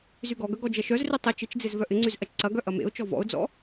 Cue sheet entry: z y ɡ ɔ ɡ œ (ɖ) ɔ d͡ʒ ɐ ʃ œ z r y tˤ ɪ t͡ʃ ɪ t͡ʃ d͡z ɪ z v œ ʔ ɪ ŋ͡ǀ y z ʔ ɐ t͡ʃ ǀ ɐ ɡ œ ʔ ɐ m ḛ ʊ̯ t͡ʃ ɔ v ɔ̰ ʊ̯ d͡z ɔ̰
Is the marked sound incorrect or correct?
incorrect